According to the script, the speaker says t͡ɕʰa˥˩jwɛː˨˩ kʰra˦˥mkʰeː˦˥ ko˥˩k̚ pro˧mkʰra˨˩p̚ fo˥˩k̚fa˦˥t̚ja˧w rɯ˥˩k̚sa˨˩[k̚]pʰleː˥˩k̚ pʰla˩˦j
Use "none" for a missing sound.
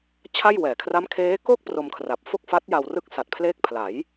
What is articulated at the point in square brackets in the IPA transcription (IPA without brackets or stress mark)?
t̚